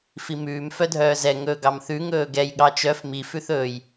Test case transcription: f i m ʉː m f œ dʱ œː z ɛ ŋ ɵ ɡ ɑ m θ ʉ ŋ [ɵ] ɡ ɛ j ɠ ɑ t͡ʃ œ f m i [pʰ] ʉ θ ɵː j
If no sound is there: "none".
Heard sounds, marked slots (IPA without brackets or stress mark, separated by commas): ɵː, f